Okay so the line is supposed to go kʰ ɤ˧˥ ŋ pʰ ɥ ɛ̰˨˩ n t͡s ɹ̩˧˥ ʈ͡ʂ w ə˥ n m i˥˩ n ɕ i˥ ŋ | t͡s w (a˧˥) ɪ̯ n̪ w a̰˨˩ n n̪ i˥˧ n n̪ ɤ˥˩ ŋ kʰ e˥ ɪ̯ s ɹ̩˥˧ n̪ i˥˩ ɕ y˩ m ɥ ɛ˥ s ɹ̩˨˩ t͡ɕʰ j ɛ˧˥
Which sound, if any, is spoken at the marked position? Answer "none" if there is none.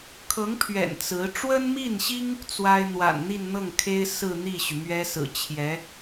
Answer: a˥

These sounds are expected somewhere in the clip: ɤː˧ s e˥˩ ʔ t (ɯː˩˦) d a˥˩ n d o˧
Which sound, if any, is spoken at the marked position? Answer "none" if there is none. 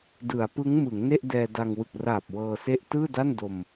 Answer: ɯː˥˩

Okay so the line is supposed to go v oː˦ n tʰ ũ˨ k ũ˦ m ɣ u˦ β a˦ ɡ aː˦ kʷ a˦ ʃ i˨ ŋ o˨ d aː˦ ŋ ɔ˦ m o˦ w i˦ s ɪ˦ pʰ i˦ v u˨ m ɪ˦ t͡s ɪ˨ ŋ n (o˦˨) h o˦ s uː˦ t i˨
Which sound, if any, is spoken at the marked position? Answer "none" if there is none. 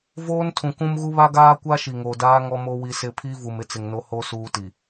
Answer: o˦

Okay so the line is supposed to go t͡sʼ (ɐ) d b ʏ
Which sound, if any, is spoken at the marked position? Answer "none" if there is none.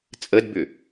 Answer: ə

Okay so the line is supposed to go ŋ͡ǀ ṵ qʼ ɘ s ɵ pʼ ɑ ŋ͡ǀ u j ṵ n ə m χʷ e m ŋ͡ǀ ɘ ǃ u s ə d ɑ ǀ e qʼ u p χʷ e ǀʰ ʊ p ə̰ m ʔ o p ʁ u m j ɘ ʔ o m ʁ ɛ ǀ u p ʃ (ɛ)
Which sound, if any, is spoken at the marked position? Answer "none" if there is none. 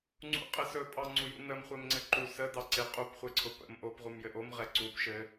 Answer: ɘ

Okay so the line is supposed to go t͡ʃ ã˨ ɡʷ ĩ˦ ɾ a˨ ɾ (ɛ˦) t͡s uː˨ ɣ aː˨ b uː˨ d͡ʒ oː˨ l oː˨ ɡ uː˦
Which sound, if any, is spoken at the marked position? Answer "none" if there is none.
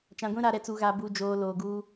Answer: ɛ˨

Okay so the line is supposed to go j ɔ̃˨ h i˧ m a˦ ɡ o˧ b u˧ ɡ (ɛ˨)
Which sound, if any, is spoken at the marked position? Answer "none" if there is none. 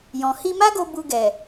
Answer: ɛ˨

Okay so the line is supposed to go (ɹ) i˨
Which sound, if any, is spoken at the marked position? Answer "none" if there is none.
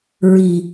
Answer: ɹ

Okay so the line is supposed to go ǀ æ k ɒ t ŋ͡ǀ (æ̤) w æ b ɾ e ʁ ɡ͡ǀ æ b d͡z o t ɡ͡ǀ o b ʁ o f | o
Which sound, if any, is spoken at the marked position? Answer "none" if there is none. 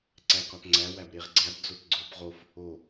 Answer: æ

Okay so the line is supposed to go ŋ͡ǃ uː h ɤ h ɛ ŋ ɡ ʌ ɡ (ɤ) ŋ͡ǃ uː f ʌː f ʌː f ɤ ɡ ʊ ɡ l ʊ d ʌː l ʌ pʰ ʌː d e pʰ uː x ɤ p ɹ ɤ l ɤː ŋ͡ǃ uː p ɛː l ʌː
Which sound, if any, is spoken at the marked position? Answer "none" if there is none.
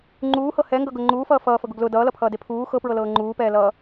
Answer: ɤ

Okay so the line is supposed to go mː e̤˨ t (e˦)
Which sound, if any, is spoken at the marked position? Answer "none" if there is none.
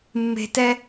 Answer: ɛ˦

